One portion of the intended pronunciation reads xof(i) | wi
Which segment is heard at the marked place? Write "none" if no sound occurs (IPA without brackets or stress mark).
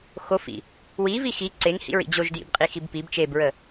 ḭ